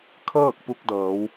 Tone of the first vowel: falling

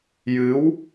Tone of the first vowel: rising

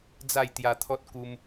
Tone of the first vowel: falling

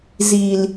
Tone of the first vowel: low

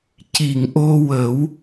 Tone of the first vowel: low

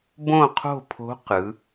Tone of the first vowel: falling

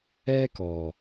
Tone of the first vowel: high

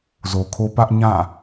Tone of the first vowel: low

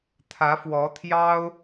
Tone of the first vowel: rising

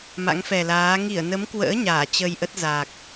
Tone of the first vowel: rising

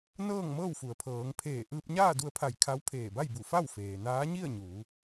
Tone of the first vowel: falling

